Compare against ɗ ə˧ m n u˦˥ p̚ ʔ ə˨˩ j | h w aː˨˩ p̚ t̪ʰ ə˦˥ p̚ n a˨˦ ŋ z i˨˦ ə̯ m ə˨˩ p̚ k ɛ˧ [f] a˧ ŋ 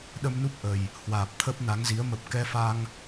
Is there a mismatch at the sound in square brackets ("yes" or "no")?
no